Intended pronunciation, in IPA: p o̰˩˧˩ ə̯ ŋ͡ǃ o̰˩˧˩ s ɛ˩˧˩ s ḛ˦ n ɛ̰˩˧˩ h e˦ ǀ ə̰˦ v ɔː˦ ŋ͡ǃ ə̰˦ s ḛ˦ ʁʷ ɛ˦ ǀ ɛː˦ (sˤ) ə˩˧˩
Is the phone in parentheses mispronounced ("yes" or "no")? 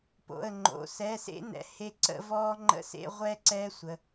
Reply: yes